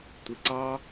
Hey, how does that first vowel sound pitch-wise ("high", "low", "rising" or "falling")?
low